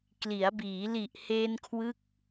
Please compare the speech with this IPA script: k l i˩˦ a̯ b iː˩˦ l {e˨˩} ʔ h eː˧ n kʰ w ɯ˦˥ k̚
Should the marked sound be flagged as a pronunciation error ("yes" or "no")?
yes